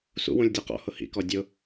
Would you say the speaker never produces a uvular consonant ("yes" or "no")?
no